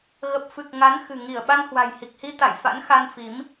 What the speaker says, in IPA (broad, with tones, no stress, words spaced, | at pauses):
ɣə˨˩p̚fɨ˨˩k̚ ŋa˨˦nxɨ̤˨˩ŋi˧˩ə̯ ɓa˧nhwa̤˨˩jhi˨˩k̚hi˧ t̪a̰˧˨jfa̰˧˥nxa˧n fi˨˦m